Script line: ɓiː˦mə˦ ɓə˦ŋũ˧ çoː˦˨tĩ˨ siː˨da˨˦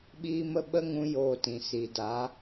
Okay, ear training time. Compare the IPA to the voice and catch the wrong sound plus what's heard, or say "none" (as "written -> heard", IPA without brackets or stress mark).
ç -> j